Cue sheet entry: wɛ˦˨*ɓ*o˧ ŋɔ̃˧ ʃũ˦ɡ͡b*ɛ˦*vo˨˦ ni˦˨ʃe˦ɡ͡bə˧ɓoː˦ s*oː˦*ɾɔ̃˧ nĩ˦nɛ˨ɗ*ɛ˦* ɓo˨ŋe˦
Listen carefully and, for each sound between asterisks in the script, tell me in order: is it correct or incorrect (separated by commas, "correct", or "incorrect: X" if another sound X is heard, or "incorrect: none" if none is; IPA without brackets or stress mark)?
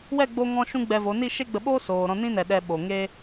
incorrect: ɡ͡b, incorrect: ɛ˧, incorrect: oː˨, incorrect: ɛ˧